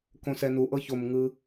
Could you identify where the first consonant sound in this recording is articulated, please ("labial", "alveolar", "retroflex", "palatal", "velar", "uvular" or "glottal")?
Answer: velar